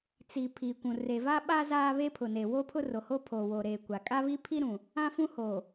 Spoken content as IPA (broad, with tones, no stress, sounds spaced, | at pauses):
t͡s i˨ pʰ i˨ kʷ ũ˨ r e˨ v a˦ ɓ aː˦ z aː˦ β e˦ pʰ ʊ˨ n e˨ w o˦ pʰ ʊ˦ r o˨ h o˦ pʰ o˨ w o˨ ɾ eː˨ kʷ a˨ kʼ a˦ β i˦ pʰ i˦ ɾ ũ˨ | ã˦ f ũ˦ h o˨